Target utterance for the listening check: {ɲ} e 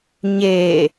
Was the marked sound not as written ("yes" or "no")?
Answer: no